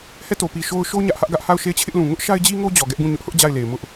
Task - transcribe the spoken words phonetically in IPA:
hɛ˦˨to˨pi˨ʃo˦ʊ̯ ʃo˦ ɲä˦ʔhä˦ʔ ɡä˦ʔha˦˨ʊ̯ ʃe˦˨ɪ̯t͡ɕʰɪ˦ʔlũ˨ ŋʊ˦ʔʃa˦ɪ̯d͡ʑi˦ŋo˦ d͡ʑɔ˨ɡɛ˦ʔɡũ˦˨ ɲʊ˦ʔhʊ˦ʔ d͡ʑa˦˨ɪ̯le˨ɪ̯mʊ˦ʔ

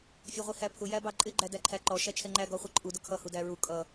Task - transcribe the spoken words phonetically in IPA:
fʲɛʁʷihæpʰʊ jæbɑǃʼɪ ɡ͡ǃædæǃʰæǃɔ ʃæt͡ʃʰɛŋ͡ǃæ ɡɔχʷɛǃʼu dʊkʰʌ hudæɹu kʼʌ

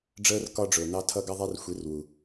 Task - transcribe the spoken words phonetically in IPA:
ɖ͡ʐəː˦r kɒ˦ɖ͡ʐʊː˨ nɑ˧ tʰʌ˧ ɡʌ˦ðˤɛ˦r xʷi˨˦rwu˨

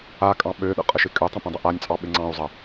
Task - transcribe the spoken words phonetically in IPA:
a kʼɑ̃ɓøɗə̰ qʼəʃɪkʼøtˤə̃ pĩdˤəʔanʲt͡sʼɑ ɓɪŋ͡ǀɑ̃u̯zˤə

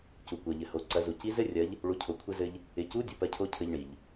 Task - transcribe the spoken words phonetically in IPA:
cu˩kʷɜ˩ʎɘ˩ho˩˧ ǀɐ˩˧zu˩ci˧˥zɘ˥ rʲɐ˧˥ʎ | ɭu˩˧cʰo˩kʷʰɘ˧zɘ˧ʎ | ɪ˩˧cu˧˥ dʲɘ˩ pɜ˧cʰo˧˥cʰɘ˧ʎɳi˩ʎ

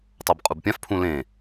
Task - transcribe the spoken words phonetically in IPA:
tˤabqʼubpʲãf pʰũlẽ

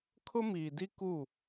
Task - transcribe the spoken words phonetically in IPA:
kʰʊ˦miː˨di˦ ku˦˨

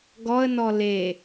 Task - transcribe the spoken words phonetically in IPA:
ɡɔə̯nɔ le

